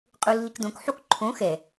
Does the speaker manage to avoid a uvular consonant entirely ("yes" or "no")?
no